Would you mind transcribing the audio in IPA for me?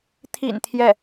t̪ʰ ḭ˨˩ n t̪ʰ j ɛ˥˩

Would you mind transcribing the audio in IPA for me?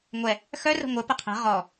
ŋʷ ɛ | x œ r ə̤ ŋʷ ɘ p ə qʰ ɛ̤ ʁ ɔ

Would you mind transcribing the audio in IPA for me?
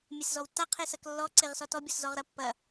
mʲ e s z ɔ w tː a qʰ e s ɐ k lː ɔ ǀ e ʁ s ɔ t ɔ bʲ ɔ s z ɔ ʁ ɾ ɐ pː ɐ

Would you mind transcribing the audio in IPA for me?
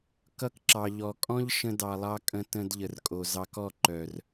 k ʌ˦ k ǁ ɑ˨ ʎ ɔ˨ kʼ ɔ̃˦ ʎ ʃ ə̃˦ d ɑ˧ lˠ ɑ˧ kʼ ə̃˧ t ə̃˧ d ʎ ə˨ r kʼ o˨ z ɑ˧ k ɔ˦˨ ǃ œ˨ r

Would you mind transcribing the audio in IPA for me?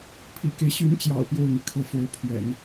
pʰ ḭ˨˩ k e˦ ɪ̯ ɕ y˧˥ n t͡ɕ j ɑ̰˨˩ ʊ̯ p j o˥˩ ʊ̯ n̪ i˩ kʰ ɤ˥˩ f o˧˥ ʊ̯ pʰ ɥ ɛ̰˨˩˦ n

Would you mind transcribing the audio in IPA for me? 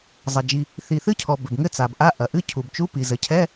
zˤ ɐ˩ d͡ʒ i˩ | θ i˩ θ ɨ˧˥˧ cʰ ɔ˩ b ɘ˩ b ŋ ɘ˧˥˧ t͡s a˩ b ʔ a˧˥˧ ʔ ɐ˩ ʔ ɨ˧˥˧ cʰ u˩ b t͡ʃ u˧˥˧ p i˩ z ɘ˩ cʰ ɛ˧˥˧

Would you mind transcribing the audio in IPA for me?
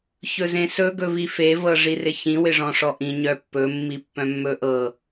ç ɵ z ẽ s ɵ ɡ ɵ v i f e v ɤ ʐ i r ɪ ç ĩ w ɪ ʐ ɔ̃ ʂ ɔ ʔ ĩ ɲ œ pː ɵ mː i pː œ̃ mː ɵ ʔ ɤ

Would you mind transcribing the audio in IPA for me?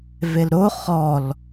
v e l ɾ o χ ɔ l

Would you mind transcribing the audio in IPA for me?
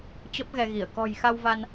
t͡ɕ ə˦˥ p̚ ɣ ɛ˧ ɣ i˧˩ ə̯ k ɔ̤˨˩ j x a˧ w v a˧ n

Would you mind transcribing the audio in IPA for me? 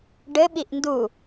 ɖ ɘ ɓ i ʔ n d u

